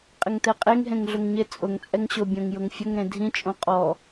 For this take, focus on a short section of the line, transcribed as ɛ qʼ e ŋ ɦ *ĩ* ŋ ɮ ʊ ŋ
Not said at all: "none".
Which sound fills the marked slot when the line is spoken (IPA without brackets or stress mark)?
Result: ẽ